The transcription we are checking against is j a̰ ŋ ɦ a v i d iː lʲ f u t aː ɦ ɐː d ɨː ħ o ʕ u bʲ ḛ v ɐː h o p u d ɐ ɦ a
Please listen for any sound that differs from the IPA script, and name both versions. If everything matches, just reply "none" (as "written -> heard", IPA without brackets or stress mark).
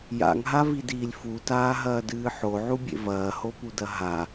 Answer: none